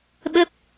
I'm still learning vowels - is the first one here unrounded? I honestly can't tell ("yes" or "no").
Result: yes